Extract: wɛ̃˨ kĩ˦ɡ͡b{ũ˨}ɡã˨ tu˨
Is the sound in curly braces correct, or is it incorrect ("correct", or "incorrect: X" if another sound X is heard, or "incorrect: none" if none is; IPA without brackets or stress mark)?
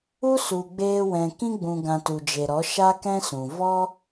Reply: correct